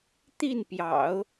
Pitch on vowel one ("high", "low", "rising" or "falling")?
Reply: falling